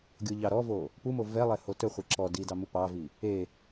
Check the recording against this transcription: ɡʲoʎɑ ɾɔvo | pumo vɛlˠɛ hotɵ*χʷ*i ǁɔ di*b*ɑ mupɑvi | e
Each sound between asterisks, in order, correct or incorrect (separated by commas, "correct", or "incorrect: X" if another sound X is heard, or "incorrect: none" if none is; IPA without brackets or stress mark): correct, incorrect: d